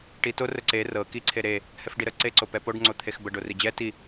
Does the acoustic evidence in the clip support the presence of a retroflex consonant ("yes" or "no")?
yes